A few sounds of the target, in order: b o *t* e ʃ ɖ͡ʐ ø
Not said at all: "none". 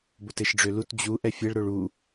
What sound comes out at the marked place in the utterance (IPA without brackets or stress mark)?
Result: t